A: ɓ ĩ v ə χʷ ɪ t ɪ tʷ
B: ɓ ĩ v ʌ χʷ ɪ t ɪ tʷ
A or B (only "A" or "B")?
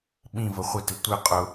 A